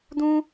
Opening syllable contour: high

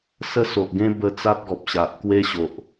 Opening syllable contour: high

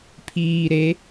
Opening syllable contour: low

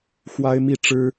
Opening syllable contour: high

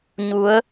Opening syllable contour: rising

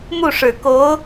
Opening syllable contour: falling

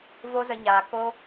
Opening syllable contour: high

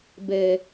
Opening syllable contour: low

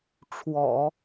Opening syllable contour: low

